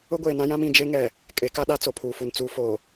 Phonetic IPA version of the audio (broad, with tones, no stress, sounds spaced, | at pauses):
ʊ˦ ɡʷ eː˨ n ã˦ j ã˦ m ĩ˨ d͡ʒ e˦ ŋ ɛ˨ | kʼ e˨˦ k a˦ ɗ a˦ t͡s o˨ pʰ uː˨ f u˨ n t͡s uː˨ f oː˨